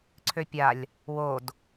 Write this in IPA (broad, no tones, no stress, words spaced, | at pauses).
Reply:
ǀʰøpʲalʲ | wod